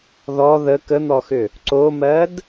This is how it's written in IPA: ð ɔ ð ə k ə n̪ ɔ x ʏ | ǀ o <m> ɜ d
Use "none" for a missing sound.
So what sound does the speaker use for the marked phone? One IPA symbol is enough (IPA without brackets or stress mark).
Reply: m